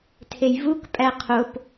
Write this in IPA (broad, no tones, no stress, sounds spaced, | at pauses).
tʰ e j v u k pʼ æ qʰ o p